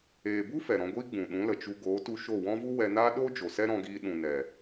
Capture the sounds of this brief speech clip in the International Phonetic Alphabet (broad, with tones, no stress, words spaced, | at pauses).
eː˨bu˦ fɛ˨ɾɔ̃˧ɡʷiː˦ ɡ͡bũ˨ɗũ˨˦lə˨t͡ʃu˧ ɡoː˨˦tu˧ ʃo˦˨wɔ̃˦vu˦ wɛ˧naː˦ ɗo˦ d͡ʒo˨sɛ˦ɾɔ̃˧ɡiː˧ ɗũ˨nɛ˨